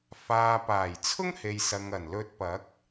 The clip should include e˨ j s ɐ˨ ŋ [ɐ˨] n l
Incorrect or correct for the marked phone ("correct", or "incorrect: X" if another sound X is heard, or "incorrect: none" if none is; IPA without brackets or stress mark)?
incorrect: ɐ˨˩